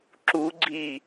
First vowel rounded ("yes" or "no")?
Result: yes